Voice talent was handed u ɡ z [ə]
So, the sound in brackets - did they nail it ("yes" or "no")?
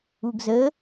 yes